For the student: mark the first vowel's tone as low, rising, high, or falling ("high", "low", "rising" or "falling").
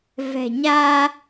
low